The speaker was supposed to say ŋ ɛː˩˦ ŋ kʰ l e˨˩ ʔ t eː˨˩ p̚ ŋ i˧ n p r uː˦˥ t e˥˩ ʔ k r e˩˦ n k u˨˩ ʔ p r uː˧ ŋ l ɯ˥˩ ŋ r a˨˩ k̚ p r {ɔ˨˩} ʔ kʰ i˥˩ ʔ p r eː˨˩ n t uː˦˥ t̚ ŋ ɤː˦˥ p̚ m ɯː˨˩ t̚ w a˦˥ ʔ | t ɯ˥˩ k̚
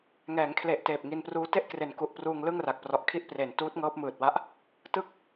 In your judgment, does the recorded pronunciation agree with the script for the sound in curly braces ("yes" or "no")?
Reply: yes